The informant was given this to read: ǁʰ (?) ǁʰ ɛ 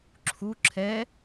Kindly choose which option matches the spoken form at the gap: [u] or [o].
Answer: u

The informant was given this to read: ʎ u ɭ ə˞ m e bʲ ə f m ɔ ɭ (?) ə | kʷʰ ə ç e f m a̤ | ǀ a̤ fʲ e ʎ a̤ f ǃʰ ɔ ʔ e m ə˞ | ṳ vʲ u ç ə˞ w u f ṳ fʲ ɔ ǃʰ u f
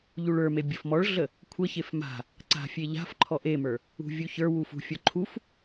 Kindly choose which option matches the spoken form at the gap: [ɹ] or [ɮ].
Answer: ɮ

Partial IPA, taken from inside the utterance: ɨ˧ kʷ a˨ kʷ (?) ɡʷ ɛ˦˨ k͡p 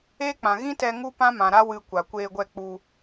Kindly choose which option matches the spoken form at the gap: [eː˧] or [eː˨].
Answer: eː˧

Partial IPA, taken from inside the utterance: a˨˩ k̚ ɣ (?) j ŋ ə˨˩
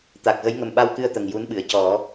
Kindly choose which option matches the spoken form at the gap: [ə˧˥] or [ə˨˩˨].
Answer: ə˧˥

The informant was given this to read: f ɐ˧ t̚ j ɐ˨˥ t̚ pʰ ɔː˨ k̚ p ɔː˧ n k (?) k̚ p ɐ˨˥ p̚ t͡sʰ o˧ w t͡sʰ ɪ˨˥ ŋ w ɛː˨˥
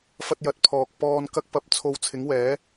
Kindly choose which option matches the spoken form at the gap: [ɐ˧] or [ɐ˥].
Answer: ɐ˧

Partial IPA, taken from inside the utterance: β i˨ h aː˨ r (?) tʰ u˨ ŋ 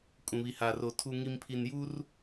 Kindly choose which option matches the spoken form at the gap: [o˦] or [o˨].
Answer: o˨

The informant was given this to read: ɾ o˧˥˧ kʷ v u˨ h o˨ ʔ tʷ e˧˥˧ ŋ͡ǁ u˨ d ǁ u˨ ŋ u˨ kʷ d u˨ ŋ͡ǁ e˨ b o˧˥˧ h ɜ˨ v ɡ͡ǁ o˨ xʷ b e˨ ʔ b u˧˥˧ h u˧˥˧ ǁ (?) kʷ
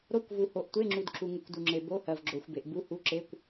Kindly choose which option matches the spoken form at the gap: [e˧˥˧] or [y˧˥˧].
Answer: e˧˥˧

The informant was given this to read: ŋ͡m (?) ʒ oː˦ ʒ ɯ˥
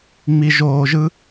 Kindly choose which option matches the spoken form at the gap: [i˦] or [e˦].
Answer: i˦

